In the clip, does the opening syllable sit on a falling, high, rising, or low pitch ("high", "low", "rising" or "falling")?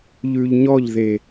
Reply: low